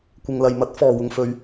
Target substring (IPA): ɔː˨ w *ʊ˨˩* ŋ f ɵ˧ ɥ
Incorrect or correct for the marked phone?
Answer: incorrect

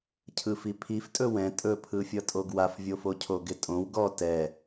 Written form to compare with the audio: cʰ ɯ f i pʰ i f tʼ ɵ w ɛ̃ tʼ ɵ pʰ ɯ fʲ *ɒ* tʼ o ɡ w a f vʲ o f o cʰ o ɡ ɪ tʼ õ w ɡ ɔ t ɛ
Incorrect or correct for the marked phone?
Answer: incorrect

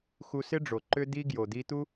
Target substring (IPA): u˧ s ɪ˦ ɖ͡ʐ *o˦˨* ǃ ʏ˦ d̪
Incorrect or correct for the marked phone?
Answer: incorrect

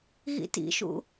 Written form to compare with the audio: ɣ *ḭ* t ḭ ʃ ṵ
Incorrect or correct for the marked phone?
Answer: correct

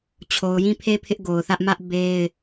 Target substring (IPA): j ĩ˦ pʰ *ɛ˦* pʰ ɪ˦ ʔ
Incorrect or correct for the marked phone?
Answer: incorrect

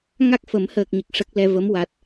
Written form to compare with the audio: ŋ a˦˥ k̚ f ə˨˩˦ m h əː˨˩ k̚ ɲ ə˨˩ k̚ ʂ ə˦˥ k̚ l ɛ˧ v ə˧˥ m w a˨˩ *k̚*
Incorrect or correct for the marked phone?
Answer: incorrect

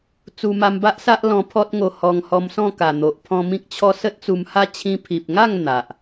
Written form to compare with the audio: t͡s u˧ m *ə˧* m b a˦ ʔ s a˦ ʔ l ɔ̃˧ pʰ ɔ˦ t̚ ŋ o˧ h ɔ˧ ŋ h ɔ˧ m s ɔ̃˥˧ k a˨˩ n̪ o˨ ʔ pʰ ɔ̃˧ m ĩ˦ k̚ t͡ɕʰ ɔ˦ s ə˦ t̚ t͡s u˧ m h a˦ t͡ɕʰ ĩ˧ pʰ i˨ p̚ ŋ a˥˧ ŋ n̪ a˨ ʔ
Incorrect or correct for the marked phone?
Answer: incorrect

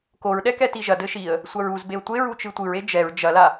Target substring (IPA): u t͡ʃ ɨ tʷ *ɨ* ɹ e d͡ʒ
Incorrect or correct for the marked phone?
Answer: correct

